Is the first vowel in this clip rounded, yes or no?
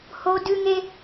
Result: yes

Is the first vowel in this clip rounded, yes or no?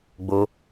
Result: yes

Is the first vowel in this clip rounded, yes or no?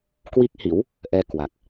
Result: no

